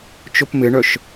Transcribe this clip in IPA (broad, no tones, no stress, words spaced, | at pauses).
t͡ʃopmɪɳœʃ